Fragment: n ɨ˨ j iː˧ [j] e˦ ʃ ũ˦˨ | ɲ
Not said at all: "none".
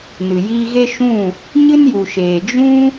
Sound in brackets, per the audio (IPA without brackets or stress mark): ɣ